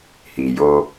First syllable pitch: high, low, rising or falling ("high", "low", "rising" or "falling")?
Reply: low